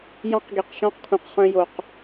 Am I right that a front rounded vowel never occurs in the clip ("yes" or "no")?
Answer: no